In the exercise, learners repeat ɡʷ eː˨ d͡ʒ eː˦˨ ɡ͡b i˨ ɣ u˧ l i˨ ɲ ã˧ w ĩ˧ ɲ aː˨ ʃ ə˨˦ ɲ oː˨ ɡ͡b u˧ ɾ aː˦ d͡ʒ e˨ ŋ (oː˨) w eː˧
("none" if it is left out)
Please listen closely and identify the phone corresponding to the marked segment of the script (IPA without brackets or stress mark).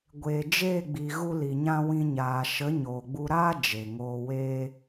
oː˨